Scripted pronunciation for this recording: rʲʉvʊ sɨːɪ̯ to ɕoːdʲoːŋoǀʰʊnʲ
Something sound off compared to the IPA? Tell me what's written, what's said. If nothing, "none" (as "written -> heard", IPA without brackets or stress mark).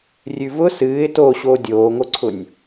none